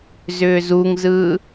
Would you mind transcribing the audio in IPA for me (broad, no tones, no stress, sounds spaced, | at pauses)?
z ʏː z u ŋ z ɯː